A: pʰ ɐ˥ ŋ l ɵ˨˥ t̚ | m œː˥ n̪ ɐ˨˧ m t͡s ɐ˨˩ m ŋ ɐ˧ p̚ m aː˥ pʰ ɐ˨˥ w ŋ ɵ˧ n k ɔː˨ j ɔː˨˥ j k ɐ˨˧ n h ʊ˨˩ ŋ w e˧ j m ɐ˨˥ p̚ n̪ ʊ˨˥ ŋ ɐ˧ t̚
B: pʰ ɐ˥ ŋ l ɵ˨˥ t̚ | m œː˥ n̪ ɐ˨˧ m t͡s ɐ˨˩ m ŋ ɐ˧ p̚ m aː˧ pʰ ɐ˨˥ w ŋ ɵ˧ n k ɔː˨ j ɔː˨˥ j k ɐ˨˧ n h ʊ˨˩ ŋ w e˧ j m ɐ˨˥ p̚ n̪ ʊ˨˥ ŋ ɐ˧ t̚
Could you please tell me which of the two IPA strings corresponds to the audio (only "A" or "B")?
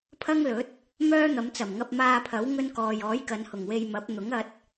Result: B